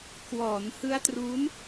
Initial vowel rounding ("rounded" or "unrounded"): rounded